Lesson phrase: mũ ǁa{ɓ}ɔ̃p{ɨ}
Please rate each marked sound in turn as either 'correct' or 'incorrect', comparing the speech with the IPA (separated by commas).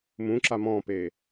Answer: incorrect, incorrect